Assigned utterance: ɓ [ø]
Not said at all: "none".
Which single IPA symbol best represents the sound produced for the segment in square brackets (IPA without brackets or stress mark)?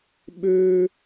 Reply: ø